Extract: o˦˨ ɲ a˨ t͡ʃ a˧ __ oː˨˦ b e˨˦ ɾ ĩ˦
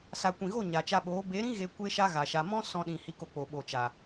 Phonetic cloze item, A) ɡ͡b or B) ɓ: B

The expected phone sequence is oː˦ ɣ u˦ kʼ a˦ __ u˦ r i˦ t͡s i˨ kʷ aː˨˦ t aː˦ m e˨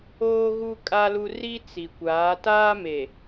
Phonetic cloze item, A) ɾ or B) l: B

